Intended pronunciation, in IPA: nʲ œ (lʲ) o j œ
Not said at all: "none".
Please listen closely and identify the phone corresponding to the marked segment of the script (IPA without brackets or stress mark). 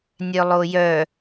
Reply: lˠ